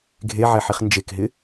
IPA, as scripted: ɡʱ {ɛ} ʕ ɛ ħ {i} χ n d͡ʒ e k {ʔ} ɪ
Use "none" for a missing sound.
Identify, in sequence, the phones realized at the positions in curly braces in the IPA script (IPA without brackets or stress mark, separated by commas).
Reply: e, i, ɦ